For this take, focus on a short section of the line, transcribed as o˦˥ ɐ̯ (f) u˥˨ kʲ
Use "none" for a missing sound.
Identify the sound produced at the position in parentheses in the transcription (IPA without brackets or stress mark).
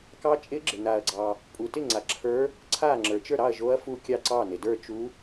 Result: f